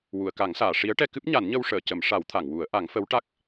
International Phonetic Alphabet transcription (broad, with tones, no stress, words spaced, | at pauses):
wu˨˩˨ə̯ka˨˩˦ŋsaː˨˩˨ ʂi˧˥ə̯ʈɛ˧ kɨ˦˥p̚ɲa˨˩˦nɲə˧wʂəː˨˩˨ cə˨˩˦mʂa˨˩˦wt̪ʰa˨˩˨ŋwu˨˩˦ə̯ ʔa˨˩˦ŋfə˧˥w ʈa˦˥k̚